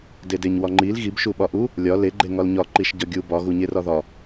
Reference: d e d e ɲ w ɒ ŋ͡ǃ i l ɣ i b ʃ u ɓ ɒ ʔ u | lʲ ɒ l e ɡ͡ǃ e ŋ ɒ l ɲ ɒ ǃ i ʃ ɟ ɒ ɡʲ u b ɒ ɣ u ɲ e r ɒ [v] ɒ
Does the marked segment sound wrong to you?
yes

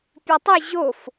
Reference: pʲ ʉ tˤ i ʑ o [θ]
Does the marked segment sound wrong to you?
yes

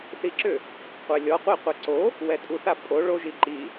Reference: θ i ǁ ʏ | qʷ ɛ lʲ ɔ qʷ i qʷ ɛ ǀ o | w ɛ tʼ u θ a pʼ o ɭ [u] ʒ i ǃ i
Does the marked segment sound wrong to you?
yes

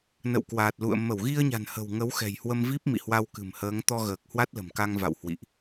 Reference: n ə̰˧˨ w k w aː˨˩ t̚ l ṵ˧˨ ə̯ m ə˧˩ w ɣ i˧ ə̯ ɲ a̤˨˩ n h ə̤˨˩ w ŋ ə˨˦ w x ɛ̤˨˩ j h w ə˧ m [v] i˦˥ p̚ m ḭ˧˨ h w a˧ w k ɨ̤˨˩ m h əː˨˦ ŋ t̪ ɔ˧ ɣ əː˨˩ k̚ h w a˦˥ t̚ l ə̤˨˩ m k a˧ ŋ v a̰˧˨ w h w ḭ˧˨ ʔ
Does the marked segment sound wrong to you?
no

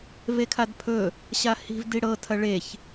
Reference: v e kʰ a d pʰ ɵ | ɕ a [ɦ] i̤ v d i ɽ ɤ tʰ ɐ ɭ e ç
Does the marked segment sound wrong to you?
yes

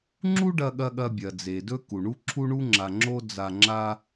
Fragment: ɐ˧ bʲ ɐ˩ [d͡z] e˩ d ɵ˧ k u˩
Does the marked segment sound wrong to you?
no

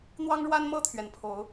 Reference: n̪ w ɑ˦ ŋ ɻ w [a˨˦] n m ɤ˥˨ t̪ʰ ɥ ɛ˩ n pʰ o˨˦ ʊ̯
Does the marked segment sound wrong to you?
yes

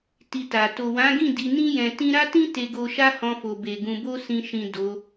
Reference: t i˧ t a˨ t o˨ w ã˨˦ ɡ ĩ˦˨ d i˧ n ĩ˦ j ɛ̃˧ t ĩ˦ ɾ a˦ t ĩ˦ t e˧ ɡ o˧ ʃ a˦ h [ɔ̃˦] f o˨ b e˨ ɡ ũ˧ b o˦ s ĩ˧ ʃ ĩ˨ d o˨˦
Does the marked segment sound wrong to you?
yes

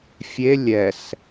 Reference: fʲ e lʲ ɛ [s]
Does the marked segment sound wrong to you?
no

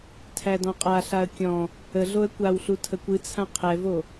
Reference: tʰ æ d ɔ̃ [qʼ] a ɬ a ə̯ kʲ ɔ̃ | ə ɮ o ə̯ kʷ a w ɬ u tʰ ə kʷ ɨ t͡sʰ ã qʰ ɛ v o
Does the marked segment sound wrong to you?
no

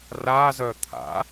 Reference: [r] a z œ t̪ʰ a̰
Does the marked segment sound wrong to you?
no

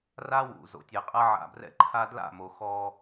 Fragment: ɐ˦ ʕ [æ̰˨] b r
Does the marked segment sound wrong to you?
yes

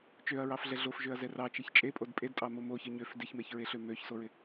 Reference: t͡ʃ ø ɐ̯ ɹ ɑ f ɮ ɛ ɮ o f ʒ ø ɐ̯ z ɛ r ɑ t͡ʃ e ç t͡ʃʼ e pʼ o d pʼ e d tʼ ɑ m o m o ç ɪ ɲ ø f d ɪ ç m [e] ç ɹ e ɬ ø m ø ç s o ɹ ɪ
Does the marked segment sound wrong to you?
no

